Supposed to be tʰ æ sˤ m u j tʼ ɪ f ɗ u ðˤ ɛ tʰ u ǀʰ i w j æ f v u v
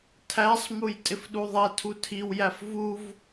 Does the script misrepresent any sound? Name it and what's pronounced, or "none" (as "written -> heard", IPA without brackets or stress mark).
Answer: ǀʰ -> tʰ